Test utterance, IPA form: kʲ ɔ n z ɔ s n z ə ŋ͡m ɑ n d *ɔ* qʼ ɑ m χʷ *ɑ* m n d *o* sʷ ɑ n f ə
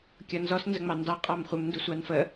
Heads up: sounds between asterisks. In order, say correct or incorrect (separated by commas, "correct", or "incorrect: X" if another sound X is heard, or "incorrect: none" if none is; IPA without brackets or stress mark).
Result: incorrect: ɑ, incorrect: ə, incorrect: u